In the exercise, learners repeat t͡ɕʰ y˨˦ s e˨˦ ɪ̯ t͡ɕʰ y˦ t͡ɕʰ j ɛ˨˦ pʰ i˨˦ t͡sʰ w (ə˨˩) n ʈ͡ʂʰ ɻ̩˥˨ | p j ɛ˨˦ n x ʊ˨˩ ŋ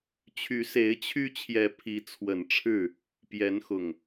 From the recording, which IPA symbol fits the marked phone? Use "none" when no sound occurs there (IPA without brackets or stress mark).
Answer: ə˨˩